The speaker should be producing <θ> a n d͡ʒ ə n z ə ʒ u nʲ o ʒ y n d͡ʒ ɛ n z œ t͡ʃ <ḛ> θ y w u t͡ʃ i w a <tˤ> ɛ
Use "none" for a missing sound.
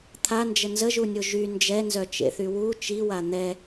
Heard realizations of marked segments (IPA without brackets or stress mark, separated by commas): t̪ʰ, ḛ, n̪